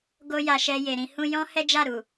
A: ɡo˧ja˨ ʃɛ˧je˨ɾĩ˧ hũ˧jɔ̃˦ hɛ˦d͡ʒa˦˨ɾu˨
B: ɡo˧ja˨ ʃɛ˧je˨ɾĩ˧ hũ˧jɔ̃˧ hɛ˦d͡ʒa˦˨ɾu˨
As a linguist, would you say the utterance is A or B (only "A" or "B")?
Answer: A